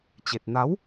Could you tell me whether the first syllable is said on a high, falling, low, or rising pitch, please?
low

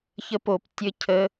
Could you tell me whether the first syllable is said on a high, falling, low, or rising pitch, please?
high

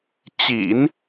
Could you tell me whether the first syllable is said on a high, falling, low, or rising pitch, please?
low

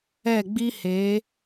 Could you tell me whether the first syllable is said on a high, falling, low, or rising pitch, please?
falling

